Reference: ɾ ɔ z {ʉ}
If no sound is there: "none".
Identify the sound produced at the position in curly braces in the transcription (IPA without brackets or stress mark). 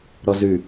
ʉ